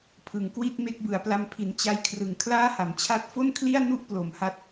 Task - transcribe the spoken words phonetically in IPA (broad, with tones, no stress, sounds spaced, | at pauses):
pʰ ɯ˩˦ ŋ k w i˥˩ t̚ m e˦˥ k̚ b ɯ˩˦ a̯ p l a˧ m pʰ i˩˦ n t͡ɕ a˧ j kʰ r ɯ˩˦ ŋ kʰ l aː˥˩ h a˩˦ m t͡ɕʰ a˦˥ t̚ f o˥˩ n kʰ l i˥˩ a̯ n u˥˩ ʔ p l o˩˦ m h a˦˥ t̚